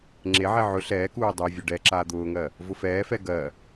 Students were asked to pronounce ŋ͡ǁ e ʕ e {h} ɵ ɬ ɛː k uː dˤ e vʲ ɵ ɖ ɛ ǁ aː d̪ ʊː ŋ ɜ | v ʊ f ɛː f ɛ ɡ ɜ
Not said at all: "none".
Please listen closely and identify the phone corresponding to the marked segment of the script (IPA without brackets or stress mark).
ʕ